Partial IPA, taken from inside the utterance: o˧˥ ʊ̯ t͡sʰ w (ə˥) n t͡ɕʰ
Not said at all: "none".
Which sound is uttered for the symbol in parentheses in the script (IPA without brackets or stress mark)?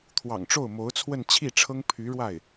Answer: ə˥˧